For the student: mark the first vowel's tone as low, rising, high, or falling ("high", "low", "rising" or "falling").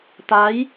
rising